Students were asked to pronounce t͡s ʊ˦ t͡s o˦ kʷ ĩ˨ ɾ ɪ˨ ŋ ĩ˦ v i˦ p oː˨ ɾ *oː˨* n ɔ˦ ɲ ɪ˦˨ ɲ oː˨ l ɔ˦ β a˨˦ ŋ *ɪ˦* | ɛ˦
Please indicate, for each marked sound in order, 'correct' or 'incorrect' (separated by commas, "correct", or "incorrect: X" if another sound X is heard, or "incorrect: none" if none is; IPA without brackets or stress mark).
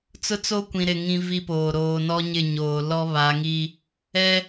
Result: correct, incorrect: i˦